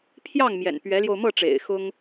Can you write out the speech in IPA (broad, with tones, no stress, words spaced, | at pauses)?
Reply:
pʰjɑ˥˩ŋ mjɛ̰˨˩n pɥɛ˧˥ljo˧ʊ̯ mɤ˥˩ ʈ͡ʂḛ˨˩ɪ̯xʊ˥ŋ